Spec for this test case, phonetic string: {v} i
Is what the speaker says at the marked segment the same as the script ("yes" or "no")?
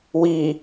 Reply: no